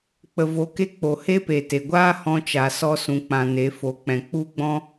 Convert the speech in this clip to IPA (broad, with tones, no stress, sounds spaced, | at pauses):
k͡p ə˨ v o˨ k e˧ k͡p o˨ h e˦ p e˨ t e˨ ɡʷ aː˦ h ɔ̃˧ t͡ʃ a˨ s ɔ˧ s ũ˨ k͡p ã˨ n e˨˦ f o˨˦ k͡p ɛ̃˨ k͡p u˦ ɡ͡b ɔ̃˦